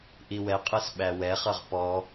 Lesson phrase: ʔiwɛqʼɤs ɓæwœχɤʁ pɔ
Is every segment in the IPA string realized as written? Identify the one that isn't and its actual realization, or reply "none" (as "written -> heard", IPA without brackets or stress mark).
œ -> ɛ